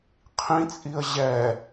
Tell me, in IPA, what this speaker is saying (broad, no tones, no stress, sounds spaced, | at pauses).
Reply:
qʰ ĩ t͡sʼ i ə̯ ʑ ɛ